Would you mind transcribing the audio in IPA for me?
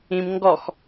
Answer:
ĩm ŋɡɔx

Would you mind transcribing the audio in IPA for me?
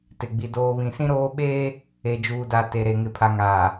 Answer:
tɪ˨ɡ͡bi˨ doː˨βĩ˨sĩ˦ɾoː˦ ɓeː˦ | e˨d͡ʒuː˨da˨ te˨ɾe˨ ŋɪ˨pʰa˨ŋaː˨

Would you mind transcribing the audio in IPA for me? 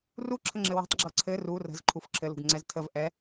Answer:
ruǁʰəŋ͡ǁɘ we̤tˤɡ͡ǁɤ ǀʰɘ ru rə̤z ǃʰufǁʰɘlṳɡ ŋ͡ǀɛztʰəv ʔɛ

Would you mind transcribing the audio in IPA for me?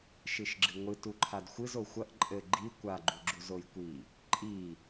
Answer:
ʃɨʃɡ͡ǁɨŋʷɨ tuǃʰadxʷɨz oxʷɐʔ ǃʼɘ ɡ͡ǃi kʷaɡ͡ǃuɡ͡ǁuz ojkʷi | ǃʼi

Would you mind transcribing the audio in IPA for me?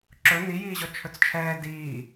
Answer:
ǁɵ nijiːʑɔ t͡ʃʰɵt͡st͡ʃʰɛː diː

